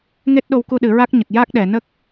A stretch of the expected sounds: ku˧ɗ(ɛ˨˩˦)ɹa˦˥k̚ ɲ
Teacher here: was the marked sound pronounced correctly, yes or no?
no